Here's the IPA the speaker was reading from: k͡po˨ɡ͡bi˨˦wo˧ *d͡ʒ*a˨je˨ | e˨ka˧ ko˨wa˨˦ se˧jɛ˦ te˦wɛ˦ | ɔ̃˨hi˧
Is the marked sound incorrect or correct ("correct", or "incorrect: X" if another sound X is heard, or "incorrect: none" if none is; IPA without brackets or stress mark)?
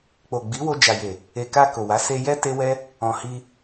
correct